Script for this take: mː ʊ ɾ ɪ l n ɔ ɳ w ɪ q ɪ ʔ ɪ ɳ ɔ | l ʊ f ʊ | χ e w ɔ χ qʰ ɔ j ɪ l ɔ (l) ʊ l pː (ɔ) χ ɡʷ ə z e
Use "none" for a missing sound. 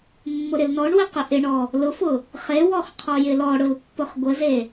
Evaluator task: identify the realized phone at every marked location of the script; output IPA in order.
ɽ, ʊ

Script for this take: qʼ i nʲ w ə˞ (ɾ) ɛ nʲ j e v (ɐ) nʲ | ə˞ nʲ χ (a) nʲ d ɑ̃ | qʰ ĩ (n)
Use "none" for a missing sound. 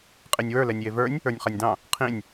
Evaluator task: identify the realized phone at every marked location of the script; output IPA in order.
l, ə˞, a, nʲ

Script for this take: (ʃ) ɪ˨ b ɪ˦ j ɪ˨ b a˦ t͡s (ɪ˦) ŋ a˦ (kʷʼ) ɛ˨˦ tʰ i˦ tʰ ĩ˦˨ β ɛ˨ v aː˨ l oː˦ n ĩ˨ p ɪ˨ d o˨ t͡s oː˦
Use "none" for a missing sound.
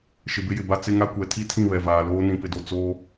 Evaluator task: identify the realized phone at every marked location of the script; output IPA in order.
ʃ, ɪ˦, kʷ

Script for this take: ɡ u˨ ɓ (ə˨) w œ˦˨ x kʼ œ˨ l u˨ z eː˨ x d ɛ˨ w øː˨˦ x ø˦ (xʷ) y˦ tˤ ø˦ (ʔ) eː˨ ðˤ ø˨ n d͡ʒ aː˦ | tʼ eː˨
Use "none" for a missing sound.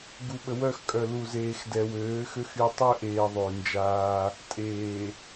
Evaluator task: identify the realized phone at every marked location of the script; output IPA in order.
ə˨, x, ʔ

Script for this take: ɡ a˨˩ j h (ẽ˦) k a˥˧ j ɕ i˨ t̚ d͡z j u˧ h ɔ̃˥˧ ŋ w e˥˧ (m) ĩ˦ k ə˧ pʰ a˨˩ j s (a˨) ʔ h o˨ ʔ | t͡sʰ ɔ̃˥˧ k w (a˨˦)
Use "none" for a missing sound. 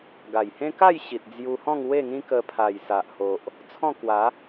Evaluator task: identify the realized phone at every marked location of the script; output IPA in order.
ẽ˦, ŋ, a˨, a˨˦

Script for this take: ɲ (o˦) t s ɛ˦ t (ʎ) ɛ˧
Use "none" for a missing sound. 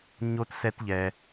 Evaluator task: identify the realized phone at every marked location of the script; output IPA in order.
o˦, ʎ

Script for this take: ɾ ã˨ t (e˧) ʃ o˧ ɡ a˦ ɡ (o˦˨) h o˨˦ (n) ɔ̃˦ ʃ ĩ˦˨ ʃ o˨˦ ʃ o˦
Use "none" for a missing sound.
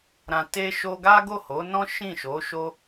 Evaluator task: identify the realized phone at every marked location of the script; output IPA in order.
e˧, o˦˨, n

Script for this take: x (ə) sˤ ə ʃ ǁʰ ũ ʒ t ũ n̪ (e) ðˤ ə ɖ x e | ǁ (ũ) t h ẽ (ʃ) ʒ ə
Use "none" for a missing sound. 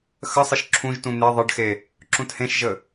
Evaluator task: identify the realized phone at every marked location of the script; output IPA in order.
ə, e, ũ, ʃ

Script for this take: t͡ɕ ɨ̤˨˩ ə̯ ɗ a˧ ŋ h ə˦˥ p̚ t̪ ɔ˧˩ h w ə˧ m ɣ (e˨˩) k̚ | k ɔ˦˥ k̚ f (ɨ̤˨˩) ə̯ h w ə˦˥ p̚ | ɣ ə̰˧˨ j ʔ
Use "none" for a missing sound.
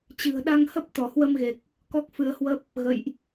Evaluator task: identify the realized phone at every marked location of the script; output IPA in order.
e˨˩, ɨ˧

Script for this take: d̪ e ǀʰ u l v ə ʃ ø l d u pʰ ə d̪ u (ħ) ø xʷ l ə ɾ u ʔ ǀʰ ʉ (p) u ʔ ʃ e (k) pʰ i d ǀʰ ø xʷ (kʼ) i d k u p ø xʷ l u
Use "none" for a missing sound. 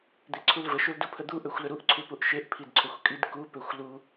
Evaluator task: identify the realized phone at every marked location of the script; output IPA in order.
ʔ, p, ʔ, kʼ

